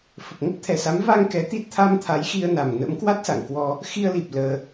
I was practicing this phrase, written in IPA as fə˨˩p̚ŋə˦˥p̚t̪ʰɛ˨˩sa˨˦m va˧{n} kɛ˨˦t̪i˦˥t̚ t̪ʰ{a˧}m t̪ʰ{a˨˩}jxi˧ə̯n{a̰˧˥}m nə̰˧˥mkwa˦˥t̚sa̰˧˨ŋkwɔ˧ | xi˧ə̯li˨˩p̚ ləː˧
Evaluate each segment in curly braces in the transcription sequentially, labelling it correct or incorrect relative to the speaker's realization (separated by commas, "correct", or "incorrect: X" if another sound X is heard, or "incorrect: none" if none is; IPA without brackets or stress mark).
incorrect: ŋ, correct, incorrect: a˨˦, incorrect: a˨˩